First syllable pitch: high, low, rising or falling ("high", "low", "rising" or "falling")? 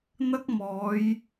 high